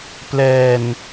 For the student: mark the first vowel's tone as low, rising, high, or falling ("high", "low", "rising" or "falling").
low